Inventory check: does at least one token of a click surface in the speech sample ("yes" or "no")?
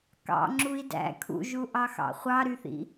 yes